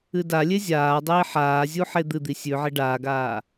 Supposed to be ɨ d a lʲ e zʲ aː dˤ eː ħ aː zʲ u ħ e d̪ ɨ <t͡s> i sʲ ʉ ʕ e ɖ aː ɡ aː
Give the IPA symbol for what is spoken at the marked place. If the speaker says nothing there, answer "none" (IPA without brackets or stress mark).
d̪